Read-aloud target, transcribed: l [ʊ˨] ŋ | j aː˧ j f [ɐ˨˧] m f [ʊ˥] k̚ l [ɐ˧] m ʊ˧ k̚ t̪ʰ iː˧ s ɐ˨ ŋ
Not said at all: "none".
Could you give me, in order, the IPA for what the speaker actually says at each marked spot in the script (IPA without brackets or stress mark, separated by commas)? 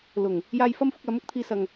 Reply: ʊ˨˩, ɐ˥, ʊ˧, ɐ˨˥